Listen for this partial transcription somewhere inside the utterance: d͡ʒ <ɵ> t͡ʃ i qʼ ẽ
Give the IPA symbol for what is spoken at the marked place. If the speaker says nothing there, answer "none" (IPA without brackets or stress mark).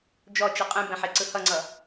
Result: ɔ